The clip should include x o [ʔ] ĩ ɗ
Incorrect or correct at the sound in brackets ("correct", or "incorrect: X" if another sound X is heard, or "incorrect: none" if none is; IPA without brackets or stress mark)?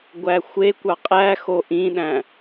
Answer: correct